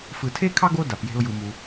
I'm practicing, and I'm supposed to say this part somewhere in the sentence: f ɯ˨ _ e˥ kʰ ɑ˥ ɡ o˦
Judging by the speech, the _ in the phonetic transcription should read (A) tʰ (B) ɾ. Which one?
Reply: A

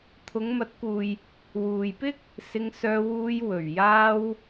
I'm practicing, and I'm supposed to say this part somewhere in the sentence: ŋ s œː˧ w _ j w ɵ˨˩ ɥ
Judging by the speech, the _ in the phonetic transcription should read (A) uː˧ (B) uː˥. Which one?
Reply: A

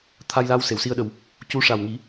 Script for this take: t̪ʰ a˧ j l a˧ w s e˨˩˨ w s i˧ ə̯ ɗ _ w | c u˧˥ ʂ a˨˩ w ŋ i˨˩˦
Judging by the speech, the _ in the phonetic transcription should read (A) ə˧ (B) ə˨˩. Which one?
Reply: B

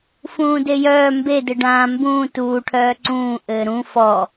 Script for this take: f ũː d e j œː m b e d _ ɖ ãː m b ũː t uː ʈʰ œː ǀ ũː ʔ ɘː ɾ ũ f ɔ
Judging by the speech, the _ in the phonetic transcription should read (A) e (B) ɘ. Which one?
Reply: B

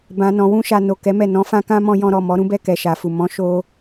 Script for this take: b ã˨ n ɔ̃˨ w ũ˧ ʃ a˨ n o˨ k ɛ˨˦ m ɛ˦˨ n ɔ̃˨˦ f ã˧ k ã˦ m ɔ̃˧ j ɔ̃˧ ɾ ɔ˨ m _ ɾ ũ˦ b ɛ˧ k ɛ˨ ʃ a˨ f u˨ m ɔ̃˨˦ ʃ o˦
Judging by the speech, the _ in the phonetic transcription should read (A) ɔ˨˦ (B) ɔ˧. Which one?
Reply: A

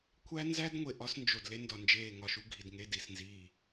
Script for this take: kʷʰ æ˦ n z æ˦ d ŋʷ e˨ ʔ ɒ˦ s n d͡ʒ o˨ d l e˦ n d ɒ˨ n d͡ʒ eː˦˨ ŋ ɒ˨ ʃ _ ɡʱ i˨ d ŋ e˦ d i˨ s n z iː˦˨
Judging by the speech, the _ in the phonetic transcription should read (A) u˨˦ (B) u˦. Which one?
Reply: B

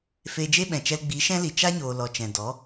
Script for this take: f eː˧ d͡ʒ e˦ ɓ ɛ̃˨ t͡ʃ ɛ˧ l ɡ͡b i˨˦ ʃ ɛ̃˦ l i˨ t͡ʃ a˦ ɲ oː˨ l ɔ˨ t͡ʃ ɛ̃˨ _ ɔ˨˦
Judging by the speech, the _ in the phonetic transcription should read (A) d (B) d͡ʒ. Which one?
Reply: A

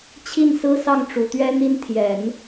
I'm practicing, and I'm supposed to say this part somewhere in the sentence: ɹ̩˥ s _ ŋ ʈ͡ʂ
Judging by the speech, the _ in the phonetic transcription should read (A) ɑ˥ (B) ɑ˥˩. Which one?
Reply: B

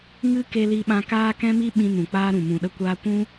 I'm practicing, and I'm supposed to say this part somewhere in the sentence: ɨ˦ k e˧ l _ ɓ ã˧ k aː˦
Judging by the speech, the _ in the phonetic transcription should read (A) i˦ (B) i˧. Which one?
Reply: B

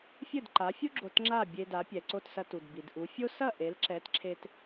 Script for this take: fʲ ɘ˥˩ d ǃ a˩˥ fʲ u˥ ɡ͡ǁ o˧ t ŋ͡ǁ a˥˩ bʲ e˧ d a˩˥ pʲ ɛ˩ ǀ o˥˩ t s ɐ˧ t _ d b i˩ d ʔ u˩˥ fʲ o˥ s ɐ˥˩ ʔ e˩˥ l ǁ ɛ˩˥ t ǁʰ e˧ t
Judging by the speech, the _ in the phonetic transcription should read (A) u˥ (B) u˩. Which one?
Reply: B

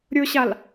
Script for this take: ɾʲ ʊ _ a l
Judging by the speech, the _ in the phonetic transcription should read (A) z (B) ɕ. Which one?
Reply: B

